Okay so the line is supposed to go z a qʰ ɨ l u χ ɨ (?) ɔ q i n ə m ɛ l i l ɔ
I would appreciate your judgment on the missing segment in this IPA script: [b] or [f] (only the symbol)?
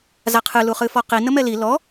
f